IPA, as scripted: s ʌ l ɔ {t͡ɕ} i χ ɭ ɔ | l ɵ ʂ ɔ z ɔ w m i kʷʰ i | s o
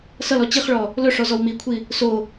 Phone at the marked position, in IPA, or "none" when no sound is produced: t͡ɕ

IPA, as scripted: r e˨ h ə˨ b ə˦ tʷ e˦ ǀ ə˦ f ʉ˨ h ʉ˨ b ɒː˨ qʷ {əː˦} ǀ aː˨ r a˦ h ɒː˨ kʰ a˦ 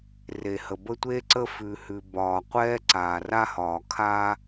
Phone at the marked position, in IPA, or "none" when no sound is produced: ɛː˦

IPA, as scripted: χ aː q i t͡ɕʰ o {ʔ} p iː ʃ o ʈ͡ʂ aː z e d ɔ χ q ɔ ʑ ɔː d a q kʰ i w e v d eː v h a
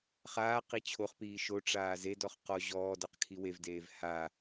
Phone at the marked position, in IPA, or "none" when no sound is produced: χ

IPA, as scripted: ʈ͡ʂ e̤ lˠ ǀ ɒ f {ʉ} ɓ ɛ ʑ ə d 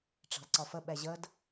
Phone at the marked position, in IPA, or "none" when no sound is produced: ə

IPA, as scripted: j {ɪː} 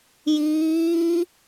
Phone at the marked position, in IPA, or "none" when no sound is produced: iː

